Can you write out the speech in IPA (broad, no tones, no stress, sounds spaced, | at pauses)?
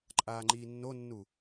ǃʼ aː ŋ͡ǃ iː nː o nː u